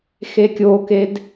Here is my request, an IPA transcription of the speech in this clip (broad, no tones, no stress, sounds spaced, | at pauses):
x e kʲ o k e d